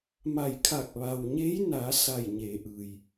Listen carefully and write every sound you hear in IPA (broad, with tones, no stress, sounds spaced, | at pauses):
m a˧˩ j kʰ a˧˩ k̚ ʋ a˩ w ɲ e˧˥ j n a˩˧ s a˧˩ j ɲ eː˩˧ ʔ ɯː˩ j